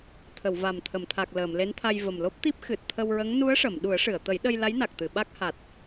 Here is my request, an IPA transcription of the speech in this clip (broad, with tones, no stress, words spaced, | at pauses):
t̪ʰə˨˩˨w va˨˩mt̪ʰə˨˩˨mt̪ʰa˨˩k̚ ləː˨˩˨mle˧˥nt̪ʰa˧j və˨˩mlo˦˥p̚t̪i˦˥p̚ xɨ˨˩t̚t̪ʰə˧wɹə˧˥ŋ nu˧˥ə̯ʂə˨˩˨m ɗu˨˩˦ə̯ʂɨ˨˩˨ə̯t̪ə˨˩˦jɗə˧j la˧˥jna˨˩k̚t̪ɨ˨˩˨ ɓa˦˥k̚ha˨˩t̚